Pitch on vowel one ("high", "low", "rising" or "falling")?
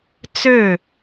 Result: falling